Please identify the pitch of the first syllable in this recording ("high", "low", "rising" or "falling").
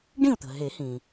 falling